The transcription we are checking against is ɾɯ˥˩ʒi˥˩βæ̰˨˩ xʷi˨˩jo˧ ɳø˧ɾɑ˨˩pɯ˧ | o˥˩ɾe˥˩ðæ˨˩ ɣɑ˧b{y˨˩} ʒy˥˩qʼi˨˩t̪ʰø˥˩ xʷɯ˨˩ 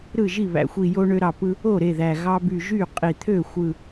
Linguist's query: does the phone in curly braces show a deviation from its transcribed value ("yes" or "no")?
no